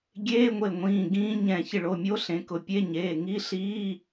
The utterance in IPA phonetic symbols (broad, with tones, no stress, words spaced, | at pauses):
ɡʲeː˧˥˧ŋʷe˧˩ŋʷĩː˩˧˩ ɡĩː˧˥ɲɛ̃˧˩ çɪ˧˩ɭo˩˧˩mʲo˧˥ ɬẽ˩˧˩kʊ˩˧˩pʲe˧˥˧ ɲeː˩˧˩ŋi˧˥˧ɬiː˧˥˧